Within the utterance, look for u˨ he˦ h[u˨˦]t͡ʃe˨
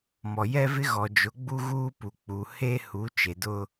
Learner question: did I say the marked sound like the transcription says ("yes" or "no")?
yes